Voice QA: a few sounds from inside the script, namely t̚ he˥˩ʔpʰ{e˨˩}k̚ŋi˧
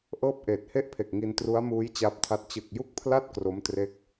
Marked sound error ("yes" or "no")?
no